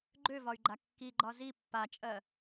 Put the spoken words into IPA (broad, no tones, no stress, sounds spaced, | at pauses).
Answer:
ɡ͡ǃ ø v ɒ y̯ ɡ͡ǃ a kː i ɡ͡ǃ ɒ z i pː a t͡ʃʼ ɜ